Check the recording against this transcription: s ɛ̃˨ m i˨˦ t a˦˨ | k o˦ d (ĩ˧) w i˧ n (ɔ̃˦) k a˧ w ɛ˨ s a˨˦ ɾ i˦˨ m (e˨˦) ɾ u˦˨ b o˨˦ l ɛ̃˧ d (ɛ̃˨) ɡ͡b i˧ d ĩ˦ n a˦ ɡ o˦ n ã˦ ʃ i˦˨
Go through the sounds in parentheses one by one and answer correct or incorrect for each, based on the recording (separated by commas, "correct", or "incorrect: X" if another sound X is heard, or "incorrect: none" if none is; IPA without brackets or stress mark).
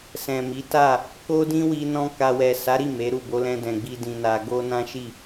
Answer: incorrect: ĩ˦, correct, correct, correct